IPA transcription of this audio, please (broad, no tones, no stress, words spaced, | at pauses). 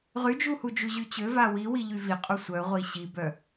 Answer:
ʁyd͡ʒuhud͡ʒu ʑyt͡ɕø vawiwi ʎyvi qʼusʷœ ʁʷiɕibœ